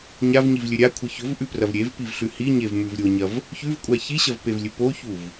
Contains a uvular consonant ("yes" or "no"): no